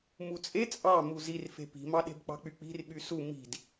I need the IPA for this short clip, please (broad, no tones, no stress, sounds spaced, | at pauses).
m u t͡sʼ e t͡sʼ ɑ m u z i r f e̤ p i̤ m ɑ ɗ e̤ b k͡p ɑ̤ k͡p y k͡p i̤ r ɓ y s u m i̤ d